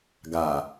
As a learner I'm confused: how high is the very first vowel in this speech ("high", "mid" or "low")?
low